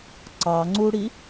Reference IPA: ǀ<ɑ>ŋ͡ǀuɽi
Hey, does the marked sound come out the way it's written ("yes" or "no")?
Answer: yes